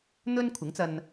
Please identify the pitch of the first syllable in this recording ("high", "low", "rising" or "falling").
high